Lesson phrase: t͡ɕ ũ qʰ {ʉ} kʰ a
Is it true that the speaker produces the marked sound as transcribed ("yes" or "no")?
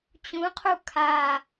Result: no